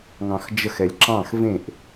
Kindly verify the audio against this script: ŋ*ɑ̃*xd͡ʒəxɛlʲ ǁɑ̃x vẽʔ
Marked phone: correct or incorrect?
correct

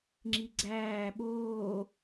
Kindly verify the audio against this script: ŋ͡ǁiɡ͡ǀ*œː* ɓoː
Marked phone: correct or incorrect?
incorrect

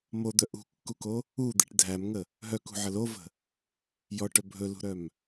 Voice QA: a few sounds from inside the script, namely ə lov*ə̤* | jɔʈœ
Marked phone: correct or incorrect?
correct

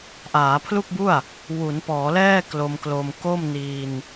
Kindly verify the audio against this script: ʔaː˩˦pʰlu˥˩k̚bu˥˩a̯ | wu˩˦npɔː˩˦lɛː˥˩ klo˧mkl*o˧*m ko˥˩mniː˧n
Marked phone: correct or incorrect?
correct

